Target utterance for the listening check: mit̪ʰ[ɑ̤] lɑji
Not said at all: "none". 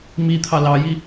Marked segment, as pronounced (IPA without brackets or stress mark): ɑ